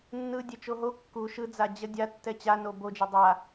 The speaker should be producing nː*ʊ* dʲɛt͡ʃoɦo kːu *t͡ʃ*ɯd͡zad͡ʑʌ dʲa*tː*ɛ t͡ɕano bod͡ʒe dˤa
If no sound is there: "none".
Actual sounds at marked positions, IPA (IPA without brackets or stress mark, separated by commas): ɯ, ʃ, tː